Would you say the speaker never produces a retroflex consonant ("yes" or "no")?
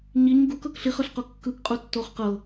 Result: yes